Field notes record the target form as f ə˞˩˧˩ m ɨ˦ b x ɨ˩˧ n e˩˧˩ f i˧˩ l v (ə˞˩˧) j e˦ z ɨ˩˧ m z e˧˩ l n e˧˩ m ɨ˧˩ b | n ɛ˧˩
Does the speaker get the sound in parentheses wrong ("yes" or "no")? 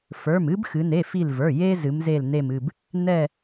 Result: yes